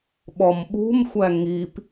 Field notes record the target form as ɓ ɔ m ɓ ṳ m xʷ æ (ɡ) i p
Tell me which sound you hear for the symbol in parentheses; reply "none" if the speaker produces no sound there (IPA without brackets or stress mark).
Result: ŋ